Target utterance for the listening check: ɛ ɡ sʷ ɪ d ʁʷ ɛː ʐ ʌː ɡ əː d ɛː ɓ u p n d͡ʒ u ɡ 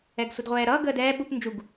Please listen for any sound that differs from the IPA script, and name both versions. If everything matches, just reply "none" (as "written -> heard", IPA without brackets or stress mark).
ʐ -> ɾ